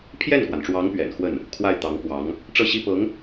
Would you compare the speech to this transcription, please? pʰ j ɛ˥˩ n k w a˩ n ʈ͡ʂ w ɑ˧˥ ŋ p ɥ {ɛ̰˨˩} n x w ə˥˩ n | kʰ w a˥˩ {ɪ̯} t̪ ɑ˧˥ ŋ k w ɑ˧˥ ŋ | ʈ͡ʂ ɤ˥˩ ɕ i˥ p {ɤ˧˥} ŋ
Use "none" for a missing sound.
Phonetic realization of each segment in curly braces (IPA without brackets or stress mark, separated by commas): ɛ̰˨˩, ɪ̯, ɤ˧˥